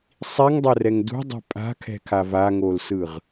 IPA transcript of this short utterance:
sˤiŋdˤɛrɛŋ dṳdˤi̤ pʼa̤kʰɛ̤kʰa vaŋolsɯʁ

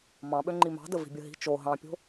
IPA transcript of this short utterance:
mɑ̃ɓø ŋ͡ǃimɑ̤də vi̤bʲəɦi̤ t͡ʃo ɦɑ̃pʲo̤

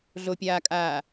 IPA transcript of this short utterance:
ɮopʲaːkʼaː

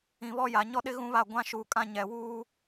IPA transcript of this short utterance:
ĩ˨βɔ˦ ja˨ ɲɔ˦ɗɪ˦ ɣũ˦βa˦˨ ɡʷã˦ʃuː˨kʼã˦ ɲɛ˨wuː˦

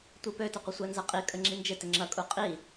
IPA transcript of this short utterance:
tʷipøtɐqʷə sʷɛnzɐqʼi kʼəŋ͡ǁind͡ʒɪtɪ ŋ͡ǁɐkʼu qʼi

